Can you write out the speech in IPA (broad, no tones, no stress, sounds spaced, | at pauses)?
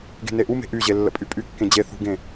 ɡ e̤ n e ʔ u m e̤ ʔ y ʑ e lː ə̰ pʼ y pʼ y kː ẽ d͡ʑ e θ ṳ ɡ ẽ